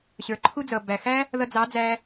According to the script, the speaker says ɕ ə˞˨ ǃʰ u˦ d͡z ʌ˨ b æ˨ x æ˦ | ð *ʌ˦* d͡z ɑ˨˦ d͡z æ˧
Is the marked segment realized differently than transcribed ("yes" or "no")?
yes